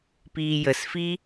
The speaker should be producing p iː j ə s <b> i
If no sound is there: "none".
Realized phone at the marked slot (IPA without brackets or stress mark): f